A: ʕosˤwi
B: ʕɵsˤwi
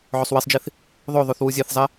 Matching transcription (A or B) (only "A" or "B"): B